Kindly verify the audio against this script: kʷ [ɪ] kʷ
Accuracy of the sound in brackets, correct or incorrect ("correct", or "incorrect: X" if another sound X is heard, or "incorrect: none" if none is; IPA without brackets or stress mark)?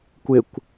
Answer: correct